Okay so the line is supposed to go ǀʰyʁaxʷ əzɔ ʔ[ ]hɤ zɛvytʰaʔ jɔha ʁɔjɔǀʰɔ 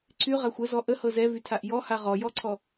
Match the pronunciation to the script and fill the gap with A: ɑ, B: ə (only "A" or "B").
B